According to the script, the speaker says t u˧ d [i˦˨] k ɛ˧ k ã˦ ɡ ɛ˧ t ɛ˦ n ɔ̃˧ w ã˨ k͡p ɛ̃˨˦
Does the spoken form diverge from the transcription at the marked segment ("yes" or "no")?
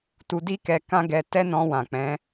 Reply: yes